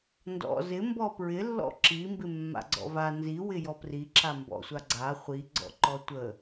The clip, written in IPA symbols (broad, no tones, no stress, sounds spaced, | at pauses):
n d ɔ̰ z ɪ m b ɔ p ɹ ɪ lː ɔ̰ ǁ i m b ɪ mː a̰ ɡ͡ǀ ɔ̰ v a n z i w ɪ j ɔ p r i ǁ a m b ɔ̰ sʷ a ɡ͡ǀ a χʷ i ɡ͡ǀ ɔ̰ ǃ ɔ tʷ ə